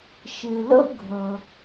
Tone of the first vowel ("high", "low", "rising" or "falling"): low